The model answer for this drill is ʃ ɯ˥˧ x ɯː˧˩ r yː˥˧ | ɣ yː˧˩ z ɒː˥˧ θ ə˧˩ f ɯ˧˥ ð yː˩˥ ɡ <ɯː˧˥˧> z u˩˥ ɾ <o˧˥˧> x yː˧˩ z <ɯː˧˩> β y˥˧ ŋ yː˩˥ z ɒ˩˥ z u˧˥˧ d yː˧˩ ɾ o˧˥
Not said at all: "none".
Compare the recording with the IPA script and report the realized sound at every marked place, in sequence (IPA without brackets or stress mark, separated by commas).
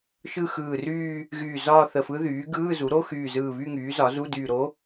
ɯː˧˥˧, o˧˥˧, ɯː˧˩